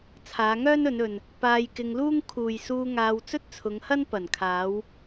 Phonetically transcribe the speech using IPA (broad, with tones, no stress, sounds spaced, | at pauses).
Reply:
t͡sʰ aː˨˧ ŋ œː˥ n ɵ˨˧ n ɵ˨ n | p aː˧ j k ɪ˧ ŋ l uː˥ ŋ kʰ uː˨ j s uː˧ ŋ aː˧ w t͡s ɵ˥ t̚ t͡sʰ ʊ˨˧ ŋ h ɐ˥ n p ɐ˨˩ n kʰ aː˨˧ w